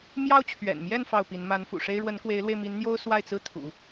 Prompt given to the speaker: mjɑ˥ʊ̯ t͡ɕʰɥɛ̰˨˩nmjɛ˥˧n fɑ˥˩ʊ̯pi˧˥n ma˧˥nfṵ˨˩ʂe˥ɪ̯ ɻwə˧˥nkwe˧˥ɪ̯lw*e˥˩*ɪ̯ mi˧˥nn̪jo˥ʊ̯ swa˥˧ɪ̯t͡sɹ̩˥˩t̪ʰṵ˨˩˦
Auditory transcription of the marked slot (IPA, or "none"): e˧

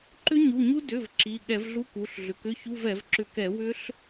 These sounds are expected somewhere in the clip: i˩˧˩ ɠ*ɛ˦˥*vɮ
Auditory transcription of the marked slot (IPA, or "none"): ɛ˧˩˧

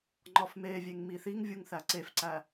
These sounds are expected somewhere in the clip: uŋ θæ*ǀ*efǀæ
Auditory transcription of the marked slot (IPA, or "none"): ǀ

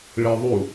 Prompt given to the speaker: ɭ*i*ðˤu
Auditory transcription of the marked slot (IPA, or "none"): i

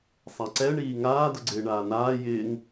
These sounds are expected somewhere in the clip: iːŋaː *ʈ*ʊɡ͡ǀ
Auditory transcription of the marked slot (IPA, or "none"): d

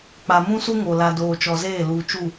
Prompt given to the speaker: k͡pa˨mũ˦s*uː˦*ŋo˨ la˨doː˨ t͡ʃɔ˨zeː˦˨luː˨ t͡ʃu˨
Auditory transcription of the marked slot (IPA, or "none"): u˦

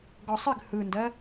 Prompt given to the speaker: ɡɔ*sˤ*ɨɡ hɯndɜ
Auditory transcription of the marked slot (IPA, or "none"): sˤ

